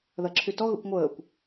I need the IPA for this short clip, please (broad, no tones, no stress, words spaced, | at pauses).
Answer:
ðɐǁʰytɔ ɣə̰kʷŋʷəːkʷ